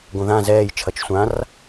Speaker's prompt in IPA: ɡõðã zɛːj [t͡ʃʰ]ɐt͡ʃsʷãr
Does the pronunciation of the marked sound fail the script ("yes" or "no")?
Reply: no